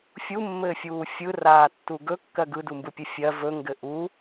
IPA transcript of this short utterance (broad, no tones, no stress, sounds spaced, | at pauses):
fʲ u mː ɘː fʲ uː fʲ ɯ r aː tː u ɡ ɵ kː ɜ ɡ ɯ d u m b ɯ pʲ ɘ fʲ ɜ v ɵ ŋ ɡ ɘ ʔ u